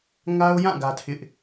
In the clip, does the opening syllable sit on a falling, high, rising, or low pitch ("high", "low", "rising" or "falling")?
high